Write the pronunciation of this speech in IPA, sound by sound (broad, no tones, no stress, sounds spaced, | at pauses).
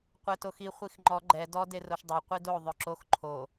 qʷ ɛ t o x i χʷ i x ŋ͡ǃ ɔ ɡ͡ǃ ɛ d ɔ d e r o ʃ dˤ o qʷ i d o ðˤ œ ǁ o x ǃʰ o